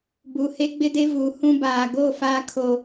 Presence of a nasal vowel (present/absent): present